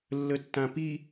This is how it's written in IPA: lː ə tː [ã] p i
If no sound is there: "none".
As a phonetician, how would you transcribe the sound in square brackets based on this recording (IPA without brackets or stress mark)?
ã